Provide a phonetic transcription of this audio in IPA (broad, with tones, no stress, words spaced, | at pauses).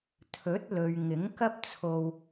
t̪ʰɵ˨˥t̚lɵ˨ɥ ŋɪ˨˥ŋkɐ˥p̚t͡sʰo˧w